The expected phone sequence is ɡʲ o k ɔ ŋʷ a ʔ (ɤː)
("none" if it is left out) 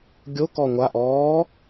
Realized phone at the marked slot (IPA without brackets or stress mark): ɔː